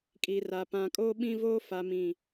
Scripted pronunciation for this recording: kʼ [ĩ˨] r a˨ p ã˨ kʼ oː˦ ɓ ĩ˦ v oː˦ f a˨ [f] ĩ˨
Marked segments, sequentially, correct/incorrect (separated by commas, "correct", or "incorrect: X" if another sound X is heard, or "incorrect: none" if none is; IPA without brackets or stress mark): incorrect: i˨, incorrect: m